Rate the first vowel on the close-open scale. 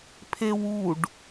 mid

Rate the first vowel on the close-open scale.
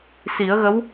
close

